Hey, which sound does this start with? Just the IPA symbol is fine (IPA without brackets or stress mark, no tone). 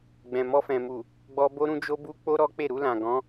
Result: ɡ͡b